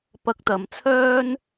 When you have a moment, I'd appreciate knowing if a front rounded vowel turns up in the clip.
yes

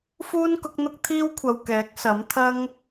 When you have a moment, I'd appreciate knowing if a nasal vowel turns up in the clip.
no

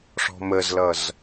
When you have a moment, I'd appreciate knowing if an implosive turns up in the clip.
no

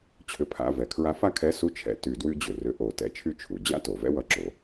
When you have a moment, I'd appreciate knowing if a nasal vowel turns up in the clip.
no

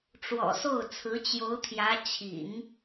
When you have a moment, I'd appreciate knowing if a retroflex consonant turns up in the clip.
yes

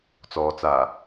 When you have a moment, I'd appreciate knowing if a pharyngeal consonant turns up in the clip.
no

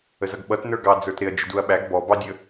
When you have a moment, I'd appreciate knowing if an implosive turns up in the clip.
yes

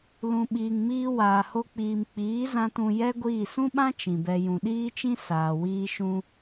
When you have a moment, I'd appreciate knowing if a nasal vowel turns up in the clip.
yes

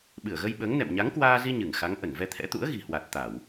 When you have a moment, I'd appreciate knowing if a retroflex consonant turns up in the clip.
no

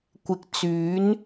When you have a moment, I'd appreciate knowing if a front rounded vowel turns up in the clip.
yes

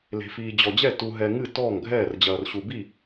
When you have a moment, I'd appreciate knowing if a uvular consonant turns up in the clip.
no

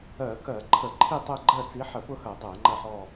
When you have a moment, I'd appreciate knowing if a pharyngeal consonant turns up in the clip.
yes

